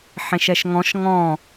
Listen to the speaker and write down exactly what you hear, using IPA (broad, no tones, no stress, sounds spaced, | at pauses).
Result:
ħ ẽ ʃ ɛ ʃ ŋ ɔ̃ ʃ ŋ ɔ̃